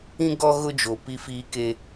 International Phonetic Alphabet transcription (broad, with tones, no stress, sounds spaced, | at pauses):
ĩ˦ ɡ ɔ˦ ɣ ʊ˦ d͡ʒ o˨ p i˦ f iː˦ k e˦